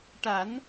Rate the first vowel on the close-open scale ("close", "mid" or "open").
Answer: open